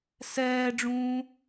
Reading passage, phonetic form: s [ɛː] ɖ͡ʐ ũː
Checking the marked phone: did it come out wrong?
no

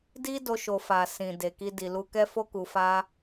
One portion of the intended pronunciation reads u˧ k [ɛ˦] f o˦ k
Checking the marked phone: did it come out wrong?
no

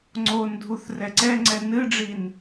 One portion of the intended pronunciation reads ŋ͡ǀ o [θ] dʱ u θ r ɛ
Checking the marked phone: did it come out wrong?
yes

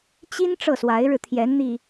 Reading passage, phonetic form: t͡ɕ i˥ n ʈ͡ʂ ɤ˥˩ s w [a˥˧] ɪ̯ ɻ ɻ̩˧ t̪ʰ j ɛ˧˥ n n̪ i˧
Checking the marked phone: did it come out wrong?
yes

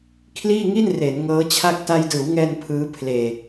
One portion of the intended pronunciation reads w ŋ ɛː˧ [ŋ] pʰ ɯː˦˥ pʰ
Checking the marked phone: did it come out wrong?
yes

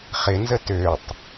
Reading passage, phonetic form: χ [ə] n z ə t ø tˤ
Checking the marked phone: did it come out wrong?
yes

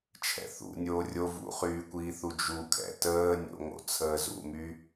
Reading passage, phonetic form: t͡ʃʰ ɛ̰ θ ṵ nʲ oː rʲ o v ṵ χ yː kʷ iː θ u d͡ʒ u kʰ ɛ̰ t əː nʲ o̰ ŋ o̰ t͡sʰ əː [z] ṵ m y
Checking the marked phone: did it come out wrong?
no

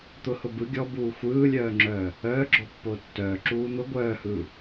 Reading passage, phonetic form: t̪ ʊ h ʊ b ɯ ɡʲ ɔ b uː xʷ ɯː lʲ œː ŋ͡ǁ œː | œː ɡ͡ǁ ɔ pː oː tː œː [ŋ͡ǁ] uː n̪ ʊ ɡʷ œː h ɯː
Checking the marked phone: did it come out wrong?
yes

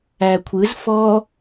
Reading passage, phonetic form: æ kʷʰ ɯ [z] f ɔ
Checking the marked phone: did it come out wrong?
no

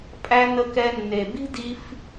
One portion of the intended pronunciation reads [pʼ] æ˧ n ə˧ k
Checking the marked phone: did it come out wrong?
no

